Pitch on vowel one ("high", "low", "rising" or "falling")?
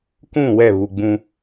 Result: falling